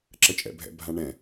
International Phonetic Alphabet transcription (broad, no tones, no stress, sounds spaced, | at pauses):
ǁ ə t͡ʃʼ ɛ̰ bʱ ɛ̰ bʱ ã ɳ ɛ̃